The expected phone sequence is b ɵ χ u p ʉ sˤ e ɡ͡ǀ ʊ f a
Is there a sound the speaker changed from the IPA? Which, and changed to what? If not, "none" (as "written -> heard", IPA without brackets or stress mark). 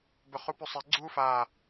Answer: ʊ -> u